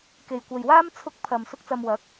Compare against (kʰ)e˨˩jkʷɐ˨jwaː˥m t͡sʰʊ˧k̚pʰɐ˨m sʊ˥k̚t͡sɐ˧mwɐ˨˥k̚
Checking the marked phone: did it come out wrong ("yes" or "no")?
yes